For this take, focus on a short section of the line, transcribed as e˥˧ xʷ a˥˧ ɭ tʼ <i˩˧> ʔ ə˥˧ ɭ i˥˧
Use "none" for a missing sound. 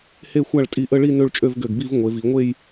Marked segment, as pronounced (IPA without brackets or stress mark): i˧